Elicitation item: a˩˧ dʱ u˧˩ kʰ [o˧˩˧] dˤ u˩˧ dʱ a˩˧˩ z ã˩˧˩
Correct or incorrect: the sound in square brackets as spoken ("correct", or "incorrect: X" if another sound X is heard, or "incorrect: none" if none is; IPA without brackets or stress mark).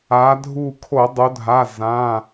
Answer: correct